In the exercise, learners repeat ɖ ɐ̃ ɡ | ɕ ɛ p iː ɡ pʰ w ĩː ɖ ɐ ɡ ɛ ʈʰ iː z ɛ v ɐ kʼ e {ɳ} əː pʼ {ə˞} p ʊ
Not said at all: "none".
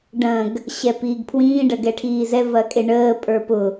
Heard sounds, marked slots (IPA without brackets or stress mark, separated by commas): ɳ, ə˞